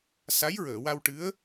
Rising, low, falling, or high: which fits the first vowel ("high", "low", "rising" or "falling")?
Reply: rising